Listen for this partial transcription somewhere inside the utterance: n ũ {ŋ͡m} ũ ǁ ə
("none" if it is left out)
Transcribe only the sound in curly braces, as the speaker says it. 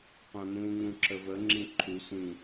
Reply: ŋ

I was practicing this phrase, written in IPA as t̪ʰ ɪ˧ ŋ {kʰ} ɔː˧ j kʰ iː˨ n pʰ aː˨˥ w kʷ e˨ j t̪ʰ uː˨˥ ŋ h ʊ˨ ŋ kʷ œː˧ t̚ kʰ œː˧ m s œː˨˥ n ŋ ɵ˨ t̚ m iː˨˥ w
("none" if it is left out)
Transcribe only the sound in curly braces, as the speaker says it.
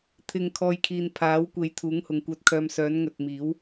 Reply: kʰ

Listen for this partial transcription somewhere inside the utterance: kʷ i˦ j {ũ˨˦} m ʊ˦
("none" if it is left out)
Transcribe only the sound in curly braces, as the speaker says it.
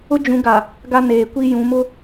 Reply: ũ˨˦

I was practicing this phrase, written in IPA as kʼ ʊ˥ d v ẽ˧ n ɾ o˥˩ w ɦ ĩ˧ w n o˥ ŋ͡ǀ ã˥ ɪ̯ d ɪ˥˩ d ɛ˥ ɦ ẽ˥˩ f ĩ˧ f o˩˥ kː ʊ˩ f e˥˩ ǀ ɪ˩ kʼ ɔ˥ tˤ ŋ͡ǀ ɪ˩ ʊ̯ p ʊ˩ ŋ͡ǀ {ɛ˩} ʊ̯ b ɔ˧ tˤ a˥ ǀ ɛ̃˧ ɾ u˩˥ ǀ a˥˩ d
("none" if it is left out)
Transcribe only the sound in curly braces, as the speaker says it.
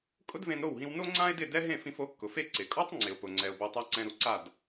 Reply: ɛ˩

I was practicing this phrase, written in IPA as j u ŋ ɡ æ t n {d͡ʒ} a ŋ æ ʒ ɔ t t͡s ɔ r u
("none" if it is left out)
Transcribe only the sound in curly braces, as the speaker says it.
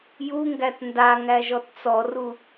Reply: d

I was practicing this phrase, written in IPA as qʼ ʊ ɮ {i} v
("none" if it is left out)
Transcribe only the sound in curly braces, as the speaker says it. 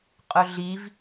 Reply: i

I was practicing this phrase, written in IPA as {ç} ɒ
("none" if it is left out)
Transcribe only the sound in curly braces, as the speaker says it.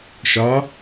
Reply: ʃ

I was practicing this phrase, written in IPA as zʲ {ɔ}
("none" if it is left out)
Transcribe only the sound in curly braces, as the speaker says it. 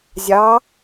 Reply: ɑ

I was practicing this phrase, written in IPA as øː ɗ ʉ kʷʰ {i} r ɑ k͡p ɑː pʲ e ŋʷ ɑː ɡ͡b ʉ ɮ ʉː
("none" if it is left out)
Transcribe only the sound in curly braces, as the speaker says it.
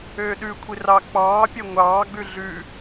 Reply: i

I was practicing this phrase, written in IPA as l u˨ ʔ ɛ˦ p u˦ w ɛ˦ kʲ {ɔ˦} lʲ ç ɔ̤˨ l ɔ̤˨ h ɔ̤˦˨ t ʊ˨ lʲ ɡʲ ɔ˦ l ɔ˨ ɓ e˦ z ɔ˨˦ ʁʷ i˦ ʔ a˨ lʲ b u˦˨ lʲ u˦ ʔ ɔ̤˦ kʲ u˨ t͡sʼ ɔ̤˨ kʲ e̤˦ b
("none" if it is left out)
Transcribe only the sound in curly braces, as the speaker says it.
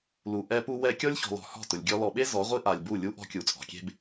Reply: ɔ˦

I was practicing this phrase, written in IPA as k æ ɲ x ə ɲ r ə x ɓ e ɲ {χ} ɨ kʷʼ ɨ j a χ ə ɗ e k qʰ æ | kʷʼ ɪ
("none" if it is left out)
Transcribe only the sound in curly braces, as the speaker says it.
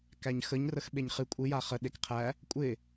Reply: χ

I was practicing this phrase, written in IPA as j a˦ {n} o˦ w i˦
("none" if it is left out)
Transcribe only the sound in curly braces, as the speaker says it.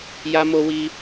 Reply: m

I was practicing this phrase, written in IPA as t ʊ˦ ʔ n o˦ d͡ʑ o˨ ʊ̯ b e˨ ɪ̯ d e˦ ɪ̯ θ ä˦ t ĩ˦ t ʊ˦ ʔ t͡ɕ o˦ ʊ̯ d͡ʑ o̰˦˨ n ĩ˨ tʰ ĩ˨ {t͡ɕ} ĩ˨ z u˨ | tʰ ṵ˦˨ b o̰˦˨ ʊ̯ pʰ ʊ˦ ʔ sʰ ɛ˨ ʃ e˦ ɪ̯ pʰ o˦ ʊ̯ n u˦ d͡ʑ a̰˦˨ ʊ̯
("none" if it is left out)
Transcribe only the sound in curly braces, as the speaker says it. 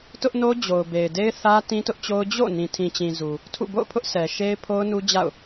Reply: t͡ɕ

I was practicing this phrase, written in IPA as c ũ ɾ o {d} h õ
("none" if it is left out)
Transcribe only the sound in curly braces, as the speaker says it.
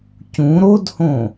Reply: d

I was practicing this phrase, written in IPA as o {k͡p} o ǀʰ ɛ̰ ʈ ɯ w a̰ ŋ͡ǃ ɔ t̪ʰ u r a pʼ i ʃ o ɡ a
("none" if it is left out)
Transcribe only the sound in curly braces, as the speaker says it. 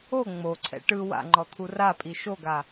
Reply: ŋ͡m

